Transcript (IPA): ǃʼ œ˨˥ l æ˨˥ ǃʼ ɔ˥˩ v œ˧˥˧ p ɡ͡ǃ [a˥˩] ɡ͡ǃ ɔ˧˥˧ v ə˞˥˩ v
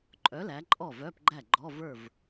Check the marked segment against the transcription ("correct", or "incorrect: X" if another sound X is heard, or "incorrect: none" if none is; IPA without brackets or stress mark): incorrect: æ˥˩